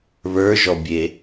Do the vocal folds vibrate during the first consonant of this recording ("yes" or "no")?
yes